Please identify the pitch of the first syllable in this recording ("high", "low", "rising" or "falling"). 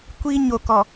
high